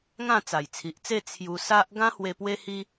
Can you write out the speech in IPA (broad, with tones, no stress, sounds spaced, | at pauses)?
ŋ ã˥˧ t͡s a˨˩ j t͡sʰ i˨ ʔ t͡s e˥˧ t͡sʰ j u˧ s a˦ ʔ ɡ ã˦ h w e˧ p w e˦ h i˦